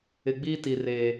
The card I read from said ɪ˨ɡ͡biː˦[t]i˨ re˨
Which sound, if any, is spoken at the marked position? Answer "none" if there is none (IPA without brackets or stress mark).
t